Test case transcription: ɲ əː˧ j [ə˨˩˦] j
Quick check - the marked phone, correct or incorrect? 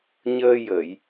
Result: incorrect